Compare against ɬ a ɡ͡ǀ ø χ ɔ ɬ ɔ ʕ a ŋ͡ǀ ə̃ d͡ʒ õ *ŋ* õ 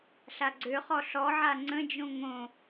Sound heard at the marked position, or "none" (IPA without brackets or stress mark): ŋ